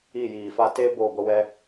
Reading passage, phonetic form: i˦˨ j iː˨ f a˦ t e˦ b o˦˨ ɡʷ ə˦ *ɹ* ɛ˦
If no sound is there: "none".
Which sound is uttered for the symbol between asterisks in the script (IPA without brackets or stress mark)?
w